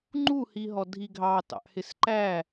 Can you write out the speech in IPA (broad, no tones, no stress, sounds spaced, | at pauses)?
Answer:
ŋ͡ǃ u h i ɦ ɔ dʱ i ɡʱ ɑ t ɑ̰ ʔ h ɪ s ǃ æ